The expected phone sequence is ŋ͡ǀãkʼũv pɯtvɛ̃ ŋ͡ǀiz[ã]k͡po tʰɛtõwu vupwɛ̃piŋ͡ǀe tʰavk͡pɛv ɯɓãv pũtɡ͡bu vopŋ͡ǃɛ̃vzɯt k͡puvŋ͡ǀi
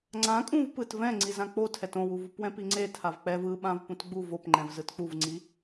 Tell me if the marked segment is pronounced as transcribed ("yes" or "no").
yes